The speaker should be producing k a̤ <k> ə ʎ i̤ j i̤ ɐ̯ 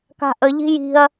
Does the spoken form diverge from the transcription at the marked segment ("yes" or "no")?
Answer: yes